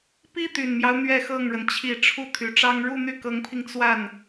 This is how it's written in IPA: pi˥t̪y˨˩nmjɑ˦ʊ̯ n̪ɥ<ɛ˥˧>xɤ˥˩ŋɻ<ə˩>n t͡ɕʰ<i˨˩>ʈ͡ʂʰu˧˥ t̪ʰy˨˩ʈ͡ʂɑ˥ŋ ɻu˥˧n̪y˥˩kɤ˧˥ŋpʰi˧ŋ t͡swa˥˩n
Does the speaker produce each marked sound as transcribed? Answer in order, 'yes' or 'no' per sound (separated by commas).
yes, yes, yes